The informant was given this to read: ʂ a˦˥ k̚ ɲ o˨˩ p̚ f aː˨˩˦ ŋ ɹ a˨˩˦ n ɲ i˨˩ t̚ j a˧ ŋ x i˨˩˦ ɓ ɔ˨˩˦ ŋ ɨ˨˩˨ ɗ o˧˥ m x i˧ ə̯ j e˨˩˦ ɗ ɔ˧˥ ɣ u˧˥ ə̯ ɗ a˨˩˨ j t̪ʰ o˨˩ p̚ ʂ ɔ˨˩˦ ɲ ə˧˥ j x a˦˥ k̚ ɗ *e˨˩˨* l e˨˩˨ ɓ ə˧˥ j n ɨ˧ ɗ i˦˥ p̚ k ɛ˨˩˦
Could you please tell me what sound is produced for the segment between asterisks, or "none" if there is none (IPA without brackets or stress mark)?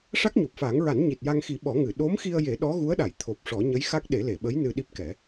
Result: e˨˩˦